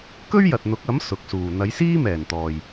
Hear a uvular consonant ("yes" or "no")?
no